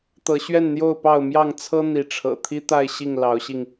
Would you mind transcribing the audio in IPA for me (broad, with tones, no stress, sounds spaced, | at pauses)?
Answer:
t̪ ɤ˨˦ ɕ ɥ ɛ˥˨ n n̪ j o˥˨ ʊ̯ p ɑ˥˨ ʊ̯ m j ɑ˥˨ ŋ t͡sʰ ɤ˦ n̪ i˨˦ ʈ͡ʂʰ ɤ̰˨˩ t̪ʰ i˦ t̪ a˥˨ ɪ̯ ɕ i˥˨ ŋ l ɑ˨˦ ʊ̯ ɕ i˧ ŋ